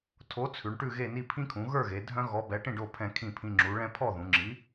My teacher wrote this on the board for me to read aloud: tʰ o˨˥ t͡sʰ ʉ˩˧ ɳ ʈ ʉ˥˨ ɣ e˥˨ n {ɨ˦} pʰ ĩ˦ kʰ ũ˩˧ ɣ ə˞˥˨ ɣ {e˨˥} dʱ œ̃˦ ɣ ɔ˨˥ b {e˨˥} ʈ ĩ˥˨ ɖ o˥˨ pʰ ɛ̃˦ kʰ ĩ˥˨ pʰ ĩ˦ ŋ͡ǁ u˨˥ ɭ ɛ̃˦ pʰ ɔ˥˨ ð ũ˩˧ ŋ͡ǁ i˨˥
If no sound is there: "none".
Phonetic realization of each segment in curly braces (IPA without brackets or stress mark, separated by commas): i˦, e˩˧, ɛ˨˥